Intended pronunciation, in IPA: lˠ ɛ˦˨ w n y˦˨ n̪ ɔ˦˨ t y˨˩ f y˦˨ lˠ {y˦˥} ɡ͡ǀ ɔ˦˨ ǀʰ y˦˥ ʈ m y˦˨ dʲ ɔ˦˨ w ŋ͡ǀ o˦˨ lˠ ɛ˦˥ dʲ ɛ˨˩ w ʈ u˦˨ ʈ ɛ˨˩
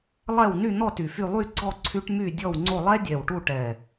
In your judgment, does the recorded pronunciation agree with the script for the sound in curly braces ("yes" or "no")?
no